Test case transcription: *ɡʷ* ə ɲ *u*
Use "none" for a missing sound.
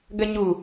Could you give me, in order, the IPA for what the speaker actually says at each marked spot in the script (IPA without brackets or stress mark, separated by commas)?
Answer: ɡ, u